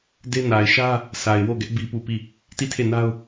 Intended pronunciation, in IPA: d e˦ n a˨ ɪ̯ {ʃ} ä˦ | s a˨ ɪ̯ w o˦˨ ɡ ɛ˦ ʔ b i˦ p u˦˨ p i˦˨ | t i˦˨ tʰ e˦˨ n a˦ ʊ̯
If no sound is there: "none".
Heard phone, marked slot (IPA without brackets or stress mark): ʃ